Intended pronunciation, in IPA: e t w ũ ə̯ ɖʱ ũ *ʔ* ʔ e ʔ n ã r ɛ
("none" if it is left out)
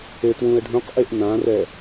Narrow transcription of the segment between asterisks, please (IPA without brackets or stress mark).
q